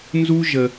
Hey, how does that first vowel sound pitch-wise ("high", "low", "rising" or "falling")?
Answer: high